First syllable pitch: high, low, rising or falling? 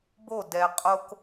falling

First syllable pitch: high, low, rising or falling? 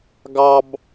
low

